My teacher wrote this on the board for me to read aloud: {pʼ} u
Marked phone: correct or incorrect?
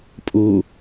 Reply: correct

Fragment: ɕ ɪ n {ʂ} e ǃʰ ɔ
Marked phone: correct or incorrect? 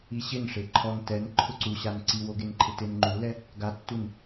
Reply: correct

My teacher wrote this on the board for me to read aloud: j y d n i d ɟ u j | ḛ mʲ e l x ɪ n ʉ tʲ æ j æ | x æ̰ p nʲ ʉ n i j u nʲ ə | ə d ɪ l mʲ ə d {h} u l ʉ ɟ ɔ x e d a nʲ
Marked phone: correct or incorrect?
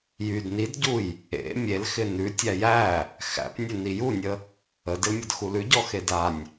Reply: incorrect: x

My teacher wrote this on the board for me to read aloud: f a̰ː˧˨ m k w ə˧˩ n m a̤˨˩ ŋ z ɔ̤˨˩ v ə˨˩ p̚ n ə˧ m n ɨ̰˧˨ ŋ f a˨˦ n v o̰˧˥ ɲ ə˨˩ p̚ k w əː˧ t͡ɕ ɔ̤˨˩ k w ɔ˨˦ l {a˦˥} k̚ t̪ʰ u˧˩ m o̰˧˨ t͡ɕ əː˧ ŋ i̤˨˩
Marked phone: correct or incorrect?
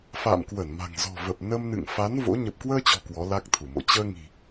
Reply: correct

